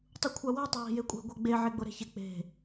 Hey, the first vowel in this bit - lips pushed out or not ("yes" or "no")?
yes